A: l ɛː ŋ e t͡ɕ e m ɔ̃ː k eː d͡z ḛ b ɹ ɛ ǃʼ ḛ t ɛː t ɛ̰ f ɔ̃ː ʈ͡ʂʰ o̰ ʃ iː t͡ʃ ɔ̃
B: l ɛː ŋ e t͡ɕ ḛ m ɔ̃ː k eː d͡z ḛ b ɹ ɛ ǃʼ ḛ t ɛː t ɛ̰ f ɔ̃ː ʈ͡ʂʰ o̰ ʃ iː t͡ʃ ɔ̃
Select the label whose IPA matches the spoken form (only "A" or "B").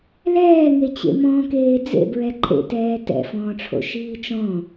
B